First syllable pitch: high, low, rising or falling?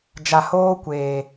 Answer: low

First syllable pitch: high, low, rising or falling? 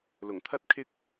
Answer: low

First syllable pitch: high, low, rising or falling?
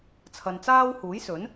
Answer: low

